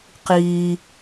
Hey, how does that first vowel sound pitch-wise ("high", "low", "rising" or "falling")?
high